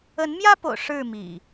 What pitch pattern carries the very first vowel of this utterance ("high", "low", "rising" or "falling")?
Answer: rising